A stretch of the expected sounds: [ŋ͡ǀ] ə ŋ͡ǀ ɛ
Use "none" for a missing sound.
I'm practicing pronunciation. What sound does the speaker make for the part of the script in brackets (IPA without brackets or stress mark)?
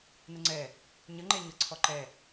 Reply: n